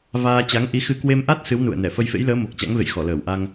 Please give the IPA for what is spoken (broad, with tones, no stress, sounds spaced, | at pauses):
v aː˧ t͡ɕ a˨˦ ŋ ʔ i˨˦ x ɨ˧ k w e˧ m ʔ a˦˥ t̚ s ɨ˨˦ w n ṵ˧˨ ə̯ n ɛ˧˩ f ə˧ j f ḛ˧˥ j l əː˨˦ m o˨˩ k̚ t͡ɕ a̰˧˥ ŋ v ḛ˧˨ j x ɔ˧˩ l əː˧˩ w ʔ a˧ ŋ